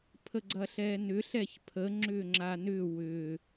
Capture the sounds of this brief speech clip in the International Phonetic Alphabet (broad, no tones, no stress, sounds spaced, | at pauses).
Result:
pʰ ə ɡ͡ǀ ɐ ɬ ɛː n ʏ ɬ ɛ ç pʰ ə ŋ͡ǁ ʏː ŋ͡ǁ a n ʏ w ʏ